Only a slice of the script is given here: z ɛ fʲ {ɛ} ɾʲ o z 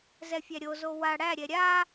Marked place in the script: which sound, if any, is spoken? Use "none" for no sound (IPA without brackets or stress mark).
æ